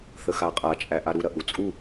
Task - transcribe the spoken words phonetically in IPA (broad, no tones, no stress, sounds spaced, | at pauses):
θ ə x a qʼ a t͡ʃʼ æ ʔ a ɾ u ɾ ɐ ʔ u t͡sʼ u